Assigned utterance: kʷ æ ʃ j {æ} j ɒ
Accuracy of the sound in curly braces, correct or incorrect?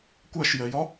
incorrect